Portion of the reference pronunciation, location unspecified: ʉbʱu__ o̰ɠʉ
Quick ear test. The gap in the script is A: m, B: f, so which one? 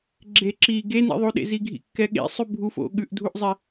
B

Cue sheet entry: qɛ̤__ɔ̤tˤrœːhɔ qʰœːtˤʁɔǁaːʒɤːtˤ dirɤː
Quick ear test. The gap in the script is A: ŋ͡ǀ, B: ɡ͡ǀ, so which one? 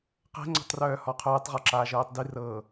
A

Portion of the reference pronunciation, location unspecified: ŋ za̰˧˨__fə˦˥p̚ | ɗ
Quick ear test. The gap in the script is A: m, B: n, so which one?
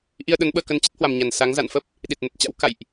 B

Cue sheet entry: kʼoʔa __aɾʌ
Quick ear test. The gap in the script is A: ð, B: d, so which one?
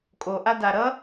B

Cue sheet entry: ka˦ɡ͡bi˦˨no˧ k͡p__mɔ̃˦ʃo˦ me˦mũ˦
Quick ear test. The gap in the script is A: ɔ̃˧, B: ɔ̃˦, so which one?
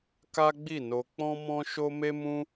B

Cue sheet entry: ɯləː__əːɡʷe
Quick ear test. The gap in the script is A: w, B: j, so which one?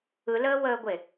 A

